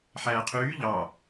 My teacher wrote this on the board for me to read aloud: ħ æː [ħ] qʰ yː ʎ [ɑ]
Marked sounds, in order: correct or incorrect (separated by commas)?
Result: incorrect, correct